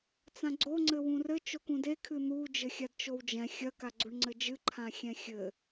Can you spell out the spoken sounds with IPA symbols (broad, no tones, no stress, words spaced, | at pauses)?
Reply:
t͡sãɡ͡ǀo ŋ͡ǀɘwũrɘ t͡ʃokũde kʰɨn̪u d͡ʒɘxʲadt͡ʃowd͡ʒɛ̃ xʲɐ kaɡ͡ǀuɳŋ͡ǀɘd͡ʒɨ ǃʰãxʲɛ̃xʲɘ